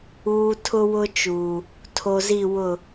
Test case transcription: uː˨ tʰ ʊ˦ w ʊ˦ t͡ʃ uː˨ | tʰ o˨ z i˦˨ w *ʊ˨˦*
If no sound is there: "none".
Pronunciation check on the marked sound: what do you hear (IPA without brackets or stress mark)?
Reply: ʊ˦˨